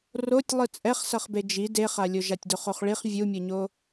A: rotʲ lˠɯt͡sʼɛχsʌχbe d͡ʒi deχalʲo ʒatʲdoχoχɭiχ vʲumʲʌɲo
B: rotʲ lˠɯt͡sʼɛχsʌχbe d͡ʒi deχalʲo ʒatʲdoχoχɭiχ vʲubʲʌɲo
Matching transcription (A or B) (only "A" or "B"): A